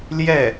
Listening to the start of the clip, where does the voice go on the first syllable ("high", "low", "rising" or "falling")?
falling